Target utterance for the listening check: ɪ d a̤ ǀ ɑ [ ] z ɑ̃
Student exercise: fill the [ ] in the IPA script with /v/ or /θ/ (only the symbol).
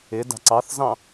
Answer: θ